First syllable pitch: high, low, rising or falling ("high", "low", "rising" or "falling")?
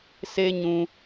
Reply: high